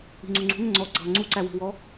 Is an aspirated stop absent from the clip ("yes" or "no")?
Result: yes